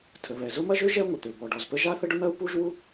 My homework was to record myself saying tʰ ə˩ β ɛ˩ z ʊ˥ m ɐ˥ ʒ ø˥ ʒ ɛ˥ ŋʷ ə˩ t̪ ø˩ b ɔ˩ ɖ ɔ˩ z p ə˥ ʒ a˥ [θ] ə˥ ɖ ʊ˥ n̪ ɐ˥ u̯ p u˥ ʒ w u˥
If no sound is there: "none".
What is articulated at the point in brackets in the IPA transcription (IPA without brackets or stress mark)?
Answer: θ